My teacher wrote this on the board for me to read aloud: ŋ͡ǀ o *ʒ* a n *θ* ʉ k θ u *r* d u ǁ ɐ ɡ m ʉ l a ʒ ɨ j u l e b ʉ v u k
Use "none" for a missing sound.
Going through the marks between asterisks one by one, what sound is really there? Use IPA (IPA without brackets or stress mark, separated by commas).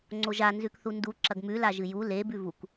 ʒ, z, n